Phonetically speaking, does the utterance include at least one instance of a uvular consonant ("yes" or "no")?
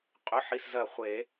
yes